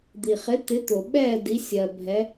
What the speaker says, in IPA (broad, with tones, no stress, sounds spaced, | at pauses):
d̪ i˩ χ ɪ˨˦ t̪ ɪ˨˦ t̪ o˩ ɓ ɛː˦˨ d i˨˦ sʲ ɜ˩ bʱ ɛ˨˦